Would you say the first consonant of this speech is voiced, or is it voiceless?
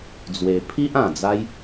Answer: voiced